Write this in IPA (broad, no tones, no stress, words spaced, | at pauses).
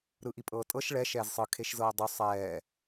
ɾɯʔipʼɤːtʼɤʃ ɭɛ ʃɛːzsˤɯ kʰeʃzɤːdˤo sˤɛː